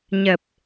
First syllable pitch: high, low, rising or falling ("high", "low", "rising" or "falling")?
low